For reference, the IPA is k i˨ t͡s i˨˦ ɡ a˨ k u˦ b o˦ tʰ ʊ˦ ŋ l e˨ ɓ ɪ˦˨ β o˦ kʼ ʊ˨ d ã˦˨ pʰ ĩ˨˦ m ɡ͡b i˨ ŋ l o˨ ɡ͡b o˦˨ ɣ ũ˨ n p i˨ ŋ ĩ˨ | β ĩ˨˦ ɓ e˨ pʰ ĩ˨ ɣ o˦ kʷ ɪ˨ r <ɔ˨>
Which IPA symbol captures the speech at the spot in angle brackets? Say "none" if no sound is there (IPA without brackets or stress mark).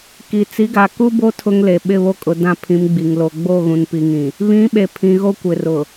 ʊ˨